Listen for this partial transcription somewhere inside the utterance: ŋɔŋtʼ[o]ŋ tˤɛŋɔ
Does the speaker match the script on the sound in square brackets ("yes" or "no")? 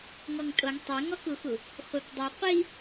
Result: yes